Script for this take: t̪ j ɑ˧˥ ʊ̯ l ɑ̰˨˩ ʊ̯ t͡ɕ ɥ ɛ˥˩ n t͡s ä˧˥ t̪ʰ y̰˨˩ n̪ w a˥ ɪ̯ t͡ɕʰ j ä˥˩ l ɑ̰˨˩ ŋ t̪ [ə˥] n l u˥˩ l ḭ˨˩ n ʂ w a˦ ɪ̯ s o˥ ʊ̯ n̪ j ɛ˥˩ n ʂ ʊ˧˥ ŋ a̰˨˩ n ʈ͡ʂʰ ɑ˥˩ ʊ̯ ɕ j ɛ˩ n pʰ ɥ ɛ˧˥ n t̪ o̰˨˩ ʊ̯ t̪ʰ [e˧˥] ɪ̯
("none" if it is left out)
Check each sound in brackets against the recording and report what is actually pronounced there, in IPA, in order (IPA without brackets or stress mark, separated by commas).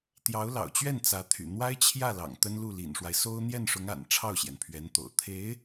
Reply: ə˥, e˧˥